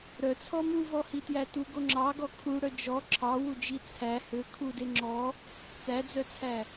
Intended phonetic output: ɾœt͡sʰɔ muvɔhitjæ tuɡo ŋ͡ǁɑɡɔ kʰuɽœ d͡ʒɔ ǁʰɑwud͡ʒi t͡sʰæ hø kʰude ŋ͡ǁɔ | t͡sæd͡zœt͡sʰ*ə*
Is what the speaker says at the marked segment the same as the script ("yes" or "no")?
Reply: no